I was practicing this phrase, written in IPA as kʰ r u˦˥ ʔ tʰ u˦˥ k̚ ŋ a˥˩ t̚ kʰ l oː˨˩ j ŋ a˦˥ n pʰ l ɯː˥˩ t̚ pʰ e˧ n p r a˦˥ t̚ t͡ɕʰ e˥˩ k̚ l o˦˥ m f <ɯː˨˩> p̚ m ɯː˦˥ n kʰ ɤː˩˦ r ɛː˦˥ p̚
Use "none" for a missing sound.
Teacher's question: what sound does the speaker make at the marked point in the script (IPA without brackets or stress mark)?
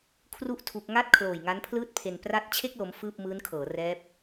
ɯː˥˩